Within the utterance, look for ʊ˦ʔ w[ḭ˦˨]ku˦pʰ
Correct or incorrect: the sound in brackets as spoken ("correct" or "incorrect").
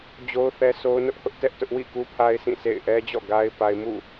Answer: correct